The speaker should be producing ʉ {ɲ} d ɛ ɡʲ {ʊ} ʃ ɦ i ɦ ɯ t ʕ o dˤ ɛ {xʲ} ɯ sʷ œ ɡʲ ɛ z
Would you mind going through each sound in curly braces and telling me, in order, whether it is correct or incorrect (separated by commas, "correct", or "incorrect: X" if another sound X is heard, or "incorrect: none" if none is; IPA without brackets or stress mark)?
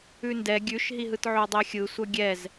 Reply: incorrect: n, incorrect: ʉ, correct